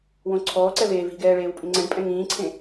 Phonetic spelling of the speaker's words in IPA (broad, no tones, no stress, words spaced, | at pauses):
wõǀʰɔːǀɛ veːvi̤ɡɛː ɭeːwpʼĩŋ͡ǀɛ̃ɖpʼɛ̃ ŋĩːǀʰẽ